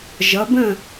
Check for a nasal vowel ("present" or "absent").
present